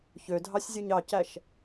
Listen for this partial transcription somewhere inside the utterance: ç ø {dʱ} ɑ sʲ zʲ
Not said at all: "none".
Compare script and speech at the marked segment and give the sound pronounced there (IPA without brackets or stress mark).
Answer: dʱ